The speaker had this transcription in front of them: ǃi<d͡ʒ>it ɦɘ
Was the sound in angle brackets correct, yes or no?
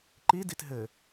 no